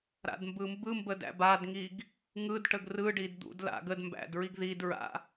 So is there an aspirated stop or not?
no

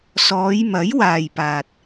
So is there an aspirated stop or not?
no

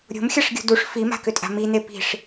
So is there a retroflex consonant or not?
yes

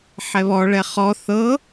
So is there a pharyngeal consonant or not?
yes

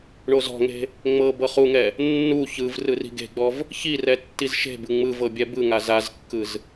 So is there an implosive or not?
no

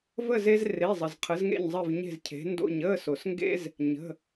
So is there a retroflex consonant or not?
no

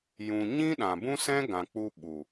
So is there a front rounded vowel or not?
no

